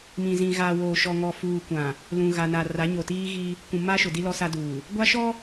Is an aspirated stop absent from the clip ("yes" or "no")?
yes